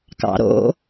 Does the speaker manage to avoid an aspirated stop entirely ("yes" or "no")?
yes